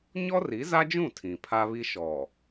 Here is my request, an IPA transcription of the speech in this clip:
ɲɔ˦ri˨˦za˦d͡ʒũ˦˨ tʰĩ˨pʰa˦βi˦ ʃɔ˨

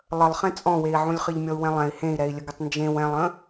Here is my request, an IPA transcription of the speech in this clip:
lˠəlˠχɛ̃ t͡sʼɔ̃wei̯ʕũlʲ χɘʎmʲɔu̯wɛ̃lˠɛ̃i̯ hẽi̯ɾɛi̯lʲəɡətˤ nd͡ʒẽw ɛ̃lˠə̃

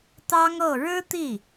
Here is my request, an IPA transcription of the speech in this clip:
t̪ɑ˥ŋɤ˥˩ ɻɻ̩˥t̪i˥˩

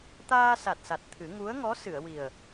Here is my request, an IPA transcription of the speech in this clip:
t̪aː˧sa˨˩t̚sa˨˩t̚ t̪ʰɨ˨˩˦ ŋu˧˥ə̯ŋɔ˧˥sɨ˨˩˨ə̯ wi˨˩ə̯

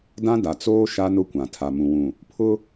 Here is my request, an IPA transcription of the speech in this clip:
dã˦ da˨t͡soː˦ ʃa˦nʊ˦kʷã˨ tʰa˨mũ˨wũ˨ | pʰʊ˦

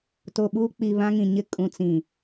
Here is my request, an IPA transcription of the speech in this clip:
to˨ɓuː˦k͡pi˨ βã˦ŋĩ˨ɲɪ˦ kʼũ˨t͡sĩ˨

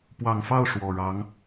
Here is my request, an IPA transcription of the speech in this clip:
pwɑ˨˩ŋfɑ˥˩ʊ̯ ʂwɔ˨˩ɻɑ˧˥ŋ

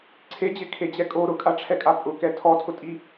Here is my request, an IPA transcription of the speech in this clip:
ǀʰed͡ʑɪkʰed͡ʑɛ kʼo ɾʊkʼaʈ͡ʂʰɛkʼa pʼʊkɛ tʰɔtʰʊtʼi

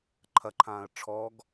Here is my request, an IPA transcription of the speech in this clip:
ǃʰɐǃʰãːə̯ ʈ͡ʂʰɔɡ

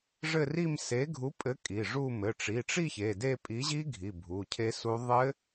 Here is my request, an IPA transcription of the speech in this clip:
ʐɘ˥˧ri˥˧m se˨˥ɡʱu˨˥pʼɘ˨˥ kʼi˩˧˩ʐu˥˧ mɘ˩˧˩ʈ͡ʂi˩˧˩ʈ͡ʂi˥˧ çe˩˧˩de˥˧ pʼi˨˥ʑi˦˥ ɡʱi˩˧˩bʱu˩˧˩cʰe˦˥su˦˥ ðˤɘ˦˥

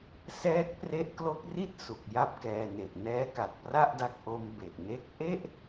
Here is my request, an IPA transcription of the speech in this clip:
sɛː˦˥k̚pre˦˥ʔklo˦˥k̚ri˥˩t̚ su˨˩k̚ja˥˩p̚kɛː˧ne˨˩ʔ nɛː˦˥ka˨˩t̚pra˥˩ʔda˦˥k̚ ʔo˦˥mbe˨˩ʔne˥˩k̚ ʔe˥˩ʔ

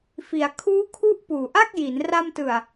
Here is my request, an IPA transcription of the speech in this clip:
fi˩˦a̯ kʰuː˦˥kʰu˦˥ʔ puː˨˩ʔa˥˩k̚ji˩˦n ra˧mtɯ˨˩a̯

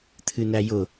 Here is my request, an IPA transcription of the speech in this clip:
t̪ʰɨnæjʊ

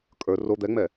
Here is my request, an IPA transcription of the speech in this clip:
kʼə˞ ro d̪ɛŋ͡mɛ

